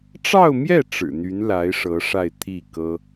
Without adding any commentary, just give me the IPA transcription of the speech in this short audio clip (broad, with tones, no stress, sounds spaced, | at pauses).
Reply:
ʈ͡ʂ ɑ˥˧ ʊ̯ m j ɛ˥˩ ʈ͡ʂ ɻ̩˨˩ n̪ y˧˥ n l a˧˥ ɪ̯ ʂ ɤ˧˥ ʂ a˥˧ ɪ̯ t̪ʰ i˥˩ k ɤ˥